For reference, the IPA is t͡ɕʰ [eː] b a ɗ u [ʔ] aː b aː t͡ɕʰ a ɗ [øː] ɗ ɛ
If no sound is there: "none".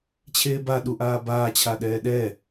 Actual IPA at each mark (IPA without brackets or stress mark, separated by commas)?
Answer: eː, ʔ, ɛː